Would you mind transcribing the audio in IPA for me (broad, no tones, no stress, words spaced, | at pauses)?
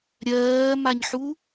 ɾʲɜːmaɲħu